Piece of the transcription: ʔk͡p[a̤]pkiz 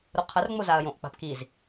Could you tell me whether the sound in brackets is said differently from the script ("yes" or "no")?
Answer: no